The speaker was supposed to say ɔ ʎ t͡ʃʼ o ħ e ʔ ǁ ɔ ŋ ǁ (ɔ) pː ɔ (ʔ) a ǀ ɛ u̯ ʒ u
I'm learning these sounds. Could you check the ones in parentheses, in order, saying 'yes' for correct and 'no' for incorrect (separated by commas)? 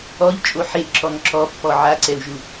yes, no